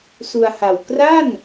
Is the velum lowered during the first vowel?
no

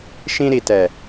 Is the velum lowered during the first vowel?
yes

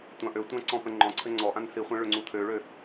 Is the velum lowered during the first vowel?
yes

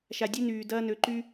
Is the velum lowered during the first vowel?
no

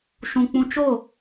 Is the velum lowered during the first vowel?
yes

